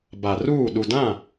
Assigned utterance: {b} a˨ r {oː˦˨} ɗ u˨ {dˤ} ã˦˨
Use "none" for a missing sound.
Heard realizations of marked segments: b, uː˦˨, d

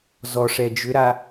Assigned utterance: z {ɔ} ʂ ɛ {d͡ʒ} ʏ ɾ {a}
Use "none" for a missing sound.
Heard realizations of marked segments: ɔ, d͡ʒ, a

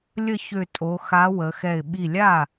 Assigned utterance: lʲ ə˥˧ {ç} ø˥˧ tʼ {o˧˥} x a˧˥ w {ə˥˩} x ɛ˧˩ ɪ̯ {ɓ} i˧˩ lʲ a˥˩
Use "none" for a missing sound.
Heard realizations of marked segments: ç, o˧˥, ə˩˧, ɓ

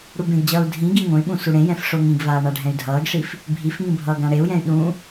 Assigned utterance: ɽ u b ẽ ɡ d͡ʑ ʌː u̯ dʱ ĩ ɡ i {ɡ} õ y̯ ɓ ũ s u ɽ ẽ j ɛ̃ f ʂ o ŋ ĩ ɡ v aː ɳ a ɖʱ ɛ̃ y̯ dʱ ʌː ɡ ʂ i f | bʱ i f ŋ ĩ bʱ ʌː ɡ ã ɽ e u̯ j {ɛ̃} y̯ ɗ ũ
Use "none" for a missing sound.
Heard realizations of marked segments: ŋ, ɛ̃

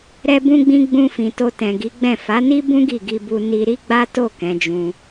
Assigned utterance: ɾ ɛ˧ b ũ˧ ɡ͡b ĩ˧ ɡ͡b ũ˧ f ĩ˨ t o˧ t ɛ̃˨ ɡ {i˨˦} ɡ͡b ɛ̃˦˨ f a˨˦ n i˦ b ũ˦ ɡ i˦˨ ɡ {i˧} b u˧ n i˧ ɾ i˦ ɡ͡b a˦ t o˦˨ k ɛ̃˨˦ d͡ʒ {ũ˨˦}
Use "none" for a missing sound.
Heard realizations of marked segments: i˨˦, i˧, ũ˧

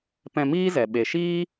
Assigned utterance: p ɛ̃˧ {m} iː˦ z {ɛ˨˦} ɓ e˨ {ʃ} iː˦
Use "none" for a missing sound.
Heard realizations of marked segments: m, ɛ˨, ʃ

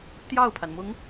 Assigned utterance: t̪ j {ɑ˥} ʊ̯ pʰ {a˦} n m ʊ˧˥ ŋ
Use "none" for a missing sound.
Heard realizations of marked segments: ɑ˥˩, a˩

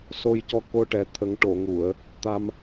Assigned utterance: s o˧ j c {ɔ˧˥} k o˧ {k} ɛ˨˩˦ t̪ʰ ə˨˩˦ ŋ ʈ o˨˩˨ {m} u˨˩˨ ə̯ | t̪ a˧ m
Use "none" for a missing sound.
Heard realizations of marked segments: ɔ˧, ʈ, ŋ

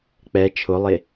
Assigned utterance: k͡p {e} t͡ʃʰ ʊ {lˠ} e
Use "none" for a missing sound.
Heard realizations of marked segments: ɛ, lˠ

